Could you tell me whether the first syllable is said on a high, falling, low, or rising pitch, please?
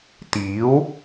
rising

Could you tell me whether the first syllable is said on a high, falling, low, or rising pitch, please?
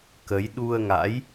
rising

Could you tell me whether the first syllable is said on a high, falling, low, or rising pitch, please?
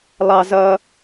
high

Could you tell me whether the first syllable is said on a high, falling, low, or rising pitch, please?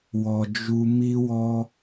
low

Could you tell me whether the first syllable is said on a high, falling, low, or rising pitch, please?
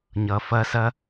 low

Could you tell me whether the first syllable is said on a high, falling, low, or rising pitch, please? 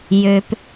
low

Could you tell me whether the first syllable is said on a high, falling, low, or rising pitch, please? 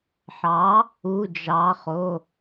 rising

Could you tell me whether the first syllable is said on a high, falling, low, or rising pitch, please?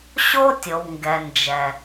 high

